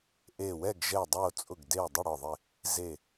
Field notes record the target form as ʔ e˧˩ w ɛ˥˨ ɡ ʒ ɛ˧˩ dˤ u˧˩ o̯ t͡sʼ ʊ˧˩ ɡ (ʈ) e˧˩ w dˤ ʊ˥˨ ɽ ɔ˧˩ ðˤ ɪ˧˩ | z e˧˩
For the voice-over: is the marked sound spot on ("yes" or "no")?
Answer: no